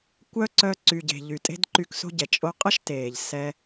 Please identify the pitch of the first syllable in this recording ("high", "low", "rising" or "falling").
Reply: high